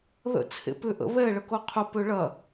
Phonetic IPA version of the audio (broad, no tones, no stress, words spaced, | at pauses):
ðə̰ t͡sʰḛpʏ ʔə̰ βɛ ɭəkoqʰʊ pøɭɐ